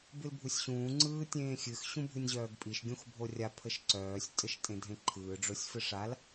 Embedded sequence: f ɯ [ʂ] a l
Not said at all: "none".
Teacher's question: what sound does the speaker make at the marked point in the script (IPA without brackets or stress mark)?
ʂ